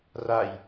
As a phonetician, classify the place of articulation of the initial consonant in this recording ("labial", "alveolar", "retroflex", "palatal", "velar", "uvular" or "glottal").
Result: alveolar